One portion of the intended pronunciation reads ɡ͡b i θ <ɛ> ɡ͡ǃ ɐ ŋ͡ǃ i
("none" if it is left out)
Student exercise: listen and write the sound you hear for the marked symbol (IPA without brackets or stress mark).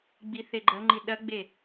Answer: e